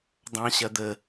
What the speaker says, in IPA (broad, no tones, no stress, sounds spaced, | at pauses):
dˤ ɑ̃ ɕ ɐ d̪ ə